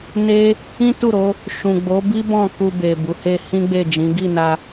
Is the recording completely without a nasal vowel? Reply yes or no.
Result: no